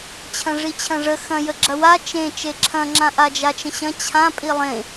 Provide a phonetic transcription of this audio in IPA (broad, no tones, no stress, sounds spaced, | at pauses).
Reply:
t͡ɕʰ ɐ̃ ʐ i t͡ɕʰ ɐ̃ ʐ ə x ɐ̃ j ə ɡ͡ǁ ɐ w a t͡ʃ ẽ t͡ʃ e ǁʰ ɐ̃ ŋ͡ǁ ã ʔ a d͡ʒ a t͡ʃ ə̃ ɕ ɐ̃ t͡ɕʰ ã pʼ i lˠ ẽ